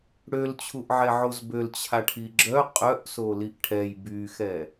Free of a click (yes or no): no